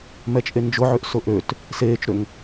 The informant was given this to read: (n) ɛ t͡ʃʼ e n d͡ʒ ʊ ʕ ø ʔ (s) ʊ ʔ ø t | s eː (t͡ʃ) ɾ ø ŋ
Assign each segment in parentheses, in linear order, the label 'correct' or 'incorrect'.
incorrect, correct, correct

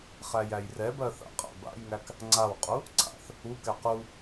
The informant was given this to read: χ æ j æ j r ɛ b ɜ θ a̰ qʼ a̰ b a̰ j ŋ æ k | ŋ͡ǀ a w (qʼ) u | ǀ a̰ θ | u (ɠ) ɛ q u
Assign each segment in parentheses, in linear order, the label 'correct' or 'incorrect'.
correct, incorrect

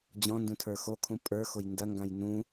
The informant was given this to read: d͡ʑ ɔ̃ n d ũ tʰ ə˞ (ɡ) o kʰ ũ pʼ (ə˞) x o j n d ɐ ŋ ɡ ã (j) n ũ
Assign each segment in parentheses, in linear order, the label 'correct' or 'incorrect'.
incorrect, correct, correct

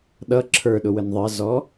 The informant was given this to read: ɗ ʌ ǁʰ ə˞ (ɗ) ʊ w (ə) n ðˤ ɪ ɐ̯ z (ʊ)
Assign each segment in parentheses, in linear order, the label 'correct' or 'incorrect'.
correct, correct, incorrect

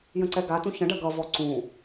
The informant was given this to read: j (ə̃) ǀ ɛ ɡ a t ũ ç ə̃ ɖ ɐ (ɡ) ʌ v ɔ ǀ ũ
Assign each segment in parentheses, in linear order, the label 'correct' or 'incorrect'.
correct, correct

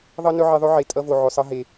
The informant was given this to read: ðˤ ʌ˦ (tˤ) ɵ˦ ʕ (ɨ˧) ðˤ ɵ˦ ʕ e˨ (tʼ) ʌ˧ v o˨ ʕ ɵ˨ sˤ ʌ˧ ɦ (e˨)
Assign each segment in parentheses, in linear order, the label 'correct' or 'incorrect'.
incorrect, incorrect, correct, correct

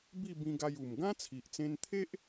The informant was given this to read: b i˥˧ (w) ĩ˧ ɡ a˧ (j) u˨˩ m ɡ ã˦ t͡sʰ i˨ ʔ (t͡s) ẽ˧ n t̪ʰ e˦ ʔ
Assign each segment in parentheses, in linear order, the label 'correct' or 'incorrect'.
incorrect, correct, correct

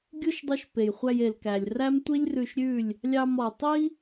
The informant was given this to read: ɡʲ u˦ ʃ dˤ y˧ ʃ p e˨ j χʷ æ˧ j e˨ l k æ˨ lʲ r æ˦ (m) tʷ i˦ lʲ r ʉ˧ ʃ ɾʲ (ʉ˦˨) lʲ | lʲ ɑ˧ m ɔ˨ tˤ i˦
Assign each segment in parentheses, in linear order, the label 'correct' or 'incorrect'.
correct, correct

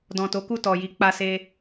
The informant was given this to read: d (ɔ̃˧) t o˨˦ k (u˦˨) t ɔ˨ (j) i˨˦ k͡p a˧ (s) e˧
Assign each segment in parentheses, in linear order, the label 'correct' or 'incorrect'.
incorrect, correct, correct, correct

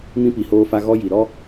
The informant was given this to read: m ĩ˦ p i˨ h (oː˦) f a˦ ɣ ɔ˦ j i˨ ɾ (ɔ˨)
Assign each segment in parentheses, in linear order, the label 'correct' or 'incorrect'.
correct, incorrect

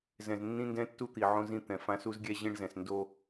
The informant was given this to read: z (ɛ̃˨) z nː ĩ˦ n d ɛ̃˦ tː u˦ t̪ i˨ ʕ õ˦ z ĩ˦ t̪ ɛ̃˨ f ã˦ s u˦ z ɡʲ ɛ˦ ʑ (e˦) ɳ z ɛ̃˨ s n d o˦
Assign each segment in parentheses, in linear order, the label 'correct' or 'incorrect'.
correct, incorrect

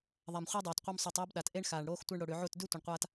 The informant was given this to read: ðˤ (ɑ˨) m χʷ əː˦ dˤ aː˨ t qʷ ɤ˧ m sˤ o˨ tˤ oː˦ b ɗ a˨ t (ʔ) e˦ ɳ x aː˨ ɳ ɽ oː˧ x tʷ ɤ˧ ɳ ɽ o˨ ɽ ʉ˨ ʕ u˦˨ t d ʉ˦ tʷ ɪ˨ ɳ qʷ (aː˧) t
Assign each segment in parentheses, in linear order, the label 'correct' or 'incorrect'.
incorrect, correct, correct

